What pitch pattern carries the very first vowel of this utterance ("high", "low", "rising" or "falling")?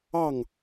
falling